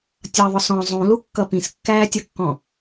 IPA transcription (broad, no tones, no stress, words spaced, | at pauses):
tʲʌðˤʊ sɔ̃ zˤũlukːʌ pĩskːæːtʲʌkːɔ̃